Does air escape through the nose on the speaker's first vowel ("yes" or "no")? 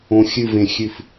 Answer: yes